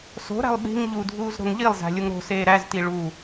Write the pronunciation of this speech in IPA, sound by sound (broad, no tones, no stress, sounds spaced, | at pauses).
s o̤ ɾ æ̤ lˠ ɓ i̤ ŋ ʎ u dʱ uː z ɾ o̤ ŋ ʎ i lˠ z æ̤ lʲ u ŋ ɾ o̤ s eː ɾ æ z t i ɭ u